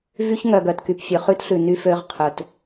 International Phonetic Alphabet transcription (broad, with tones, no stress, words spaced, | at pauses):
vy˦ç ŋœ˨ɡœ˨tky˨p fʲø˨χʉ˦tɬʉ˨ ny˦fø˦ʁ qʰɵ˨t